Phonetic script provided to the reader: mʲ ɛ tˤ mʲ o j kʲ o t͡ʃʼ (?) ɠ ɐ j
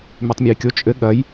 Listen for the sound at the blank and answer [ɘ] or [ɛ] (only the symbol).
ɘ